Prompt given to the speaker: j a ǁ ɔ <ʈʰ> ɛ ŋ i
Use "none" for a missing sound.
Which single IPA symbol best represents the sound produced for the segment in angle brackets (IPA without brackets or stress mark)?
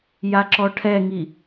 ʈʰ